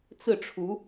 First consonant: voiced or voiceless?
voiceless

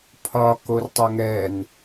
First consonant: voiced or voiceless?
voiceless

